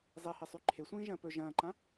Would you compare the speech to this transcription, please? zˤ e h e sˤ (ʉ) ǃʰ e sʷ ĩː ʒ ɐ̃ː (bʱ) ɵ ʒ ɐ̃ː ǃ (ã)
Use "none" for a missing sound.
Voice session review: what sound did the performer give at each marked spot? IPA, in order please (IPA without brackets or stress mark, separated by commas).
ʉ, p, ã